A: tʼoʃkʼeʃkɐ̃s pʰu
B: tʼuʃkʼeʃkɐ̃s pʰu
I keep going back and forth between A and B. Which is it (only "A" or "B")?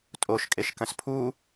A